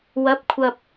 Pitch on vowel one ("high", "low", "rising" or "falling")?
rising